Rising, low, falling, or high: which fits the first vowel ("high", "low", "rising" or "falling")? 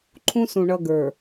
high